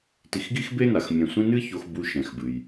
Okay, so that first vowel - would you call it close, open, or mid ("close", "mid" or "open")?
close